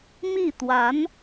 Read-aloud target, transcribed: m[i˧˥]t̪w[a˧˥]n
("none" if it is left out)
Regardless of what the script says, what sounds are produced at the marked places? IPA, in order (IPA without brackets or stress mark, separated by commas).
i˥˩, a˧˥